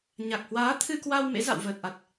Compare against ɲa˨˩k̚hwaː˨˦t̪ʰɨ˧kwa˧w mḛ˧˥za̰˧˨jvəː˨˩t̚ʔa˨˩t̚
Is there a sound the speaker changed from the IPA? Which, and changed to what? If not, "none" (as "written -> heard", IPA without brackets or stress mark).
j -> w